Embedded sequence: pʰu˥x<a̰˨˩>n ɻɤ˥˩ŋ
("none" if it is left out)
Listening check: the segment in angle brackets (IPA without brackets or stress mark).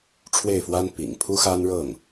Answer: a˥